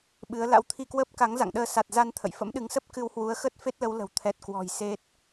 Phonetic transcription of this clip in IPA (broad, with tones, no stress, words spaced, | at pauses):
ɓɨ˨˦ə̯ la̰˧˥wt̪ʰi˧kwəː˦˥p̚ ka˨˦ŋ za̰˧˨ŋɗəː˧ sa˨˩t̚ za˧n t̪ʰə̰˧˨jfə̰˧˥mɗɨ˨˦ŋsə˦˥p̚ kɨ˧whwu˨˦ə̯xə˦˥t̚ fe˦˥t̚lə˨˦wlə̤˨˩w t̪ʰɛ˨˩t̚kwɔ̤˨˩j se˦˥t̚